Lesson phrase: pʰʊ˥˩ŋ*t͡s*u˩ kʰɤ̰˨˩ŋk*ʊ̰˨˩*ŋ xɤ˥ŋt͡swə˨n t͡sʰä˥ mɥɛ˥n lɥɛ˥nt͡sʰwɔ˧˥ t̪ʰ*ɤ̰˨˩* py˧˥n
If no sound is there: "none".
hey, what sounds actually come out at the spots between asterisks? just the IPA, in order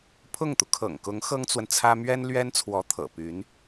t̪, ʊ˧˥, ɤ̰˨˩

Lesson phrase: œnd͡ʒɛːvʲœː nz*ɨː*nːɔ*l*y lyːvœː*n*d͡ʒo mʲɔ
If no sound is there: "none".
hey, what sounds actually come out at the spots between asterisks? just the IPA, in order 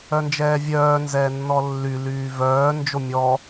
ɛː, lː, n

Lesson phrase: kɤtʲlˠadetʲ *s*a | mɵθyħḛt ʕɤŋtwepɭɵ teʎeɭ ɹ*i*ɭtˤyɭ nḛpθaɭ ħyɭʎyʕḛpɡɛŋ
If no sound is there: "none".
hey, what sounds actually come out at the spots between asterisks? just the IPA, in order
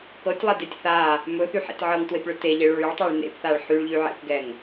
θ, y

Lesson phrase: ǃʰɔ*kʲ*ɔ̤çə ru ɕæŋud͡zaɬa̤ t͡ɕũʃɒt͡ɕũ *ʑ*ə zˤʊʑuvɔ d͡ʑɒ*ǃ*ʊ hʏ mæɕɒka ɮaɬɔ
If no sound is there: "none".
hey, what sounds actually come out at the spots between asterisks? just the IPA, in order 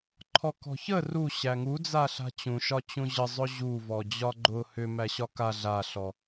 k, ʑ, ɡ͡ǃ

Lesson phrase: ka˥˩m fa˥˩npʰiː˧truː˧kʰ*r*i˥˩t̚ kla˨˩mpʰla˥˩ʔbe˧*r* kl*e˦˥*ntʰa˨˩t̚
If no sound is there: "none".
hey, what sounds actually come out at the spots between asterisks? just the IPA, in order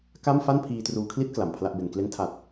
l, n, e˦˥

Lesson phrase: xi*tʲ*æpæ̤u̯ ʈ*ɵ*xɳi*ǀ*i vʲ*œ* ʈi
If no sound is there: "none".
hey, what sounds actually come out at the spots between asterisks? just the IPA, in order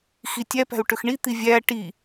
tʲ, ɵ, t̪, æ

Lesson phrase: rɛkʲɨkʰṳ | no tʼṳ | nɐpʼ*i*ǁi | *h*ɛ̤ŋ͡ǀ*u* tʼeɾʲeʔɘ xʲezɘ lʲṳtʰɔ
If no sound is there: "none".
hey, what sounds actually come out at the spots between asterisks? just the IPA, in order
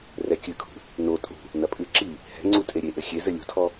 ɨ, h, u

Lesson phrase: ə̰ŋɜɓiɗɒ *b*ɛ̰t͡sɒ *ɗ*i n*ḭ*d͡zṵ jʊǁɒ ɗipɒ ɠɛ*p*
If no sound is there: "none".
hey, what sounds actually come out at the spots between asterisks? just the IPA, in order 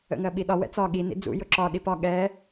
w, ɠ, ḭ, none

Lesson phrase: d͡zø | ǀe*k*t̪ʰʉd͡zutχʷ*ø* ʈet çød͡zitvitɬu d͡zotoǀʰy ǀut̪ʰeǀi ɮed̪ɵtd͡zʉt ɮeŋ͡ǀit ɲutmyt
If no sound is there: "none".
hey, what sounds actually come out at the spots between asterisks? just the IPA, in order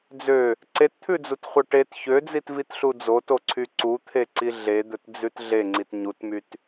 t, œ

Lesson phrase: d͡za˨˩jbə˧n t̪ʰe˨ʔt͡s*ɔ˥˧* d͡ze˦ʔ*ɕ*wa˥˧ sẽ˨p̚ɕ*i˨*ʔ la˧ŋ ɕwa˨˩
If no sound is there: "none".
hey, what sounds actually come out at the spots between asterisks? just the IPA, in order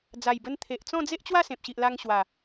ɔ̃˥˧, t͡ɕ, i˨

